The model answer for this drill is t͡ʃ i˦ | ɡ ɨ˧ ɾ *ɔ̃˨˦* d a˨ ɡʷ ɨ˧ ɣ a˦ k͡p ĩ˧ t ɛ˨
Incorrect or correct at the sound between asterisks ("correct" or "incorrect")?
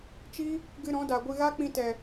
correct